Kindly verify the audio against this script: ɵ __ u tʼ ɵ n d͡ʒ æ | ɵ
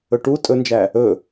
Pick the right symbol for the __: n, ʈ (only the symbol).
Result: ʈ